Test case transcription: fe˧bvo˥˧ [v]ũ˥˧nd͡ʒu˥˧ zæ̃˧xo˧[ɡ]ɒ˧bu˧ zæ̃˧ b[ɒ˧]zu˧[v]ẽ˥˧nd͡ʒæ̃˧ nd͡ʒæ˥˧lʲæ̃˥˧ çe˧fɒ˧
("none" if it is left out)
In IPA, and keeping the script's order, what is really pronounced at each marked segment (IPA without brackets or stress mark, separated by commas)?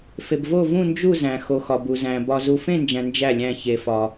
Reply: v, x, ɒ˧, f